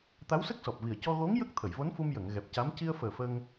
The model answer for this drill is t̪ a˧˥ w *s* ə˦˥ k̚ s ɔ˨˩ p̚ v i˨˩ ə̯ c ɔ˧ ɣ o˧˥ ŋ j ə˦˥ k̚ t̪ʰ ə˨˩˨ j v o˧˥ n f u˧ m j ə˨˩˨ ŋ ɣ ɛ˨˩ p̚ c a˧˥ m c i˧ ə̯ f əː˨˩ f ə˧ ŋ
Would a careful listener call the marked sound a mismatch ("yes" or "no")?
no